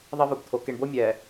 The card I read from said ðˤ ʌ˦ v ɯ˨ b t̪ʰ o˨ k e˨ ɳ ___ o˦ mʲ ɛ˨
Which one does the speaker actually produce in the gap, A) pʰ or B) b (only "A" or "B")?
B